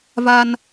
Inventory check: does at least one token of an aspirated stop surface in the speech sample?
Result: no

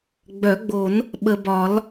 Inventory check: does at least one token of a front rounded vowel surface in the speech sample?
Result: yes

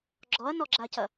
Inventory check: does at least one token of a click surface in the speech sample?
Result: yes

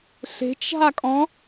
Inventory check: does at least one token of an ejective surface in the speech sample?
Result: yes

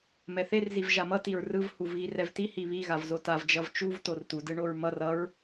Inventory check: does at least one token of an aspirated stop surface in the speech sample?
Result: no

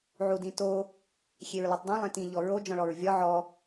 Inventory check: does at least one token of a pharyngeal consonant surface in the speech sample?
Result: yes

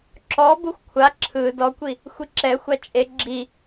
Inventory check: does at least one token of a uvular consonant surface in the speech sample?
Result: no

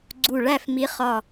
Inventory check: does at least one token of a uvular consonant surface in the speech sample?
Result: yes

